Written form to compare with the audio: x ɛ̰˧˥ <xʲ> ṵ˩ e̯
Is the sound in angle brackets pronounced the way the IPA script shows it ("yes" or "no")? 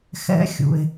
yes